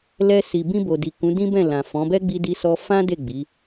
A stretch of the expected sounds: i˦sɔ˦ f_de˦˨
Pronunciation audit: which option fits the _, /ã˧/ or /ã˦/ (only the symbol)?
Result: ã˦